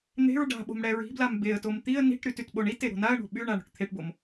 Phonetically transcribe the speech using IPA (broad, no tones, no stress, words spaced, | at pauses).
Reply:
n̪e̤ɹ ɖa̤ɓo̤m ɽɛɹi̤blam beə̯tom t̪iə̯ ni̤ʈɾyt ytɓoɳite ɾo̤naə̯ɳo̤ ɓyɳa ɳo̤ʈt̪ʰeʈbom